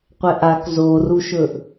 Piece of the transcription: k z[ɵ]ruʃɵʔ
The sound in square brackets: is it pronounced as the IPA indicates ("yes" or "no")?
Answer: no